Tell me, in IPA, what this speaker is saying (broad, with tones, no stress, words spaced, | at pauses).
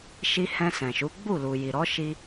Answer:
ʃi˧ hɛ̃˧sɛ̃˨ʃu˨˦ ɡ͡bu˦˨lu˨ ji˨ɾɔ˨˦ʃi˧